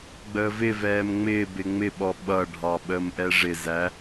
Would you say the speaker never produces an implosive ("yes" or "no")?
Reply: no